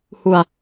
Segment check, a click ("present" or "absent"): absent